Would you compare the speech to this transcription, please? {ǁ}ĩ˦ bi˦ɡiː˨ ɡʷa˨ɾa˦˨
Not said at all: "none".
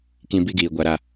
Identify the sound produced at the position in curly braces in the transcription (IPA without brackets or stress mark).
k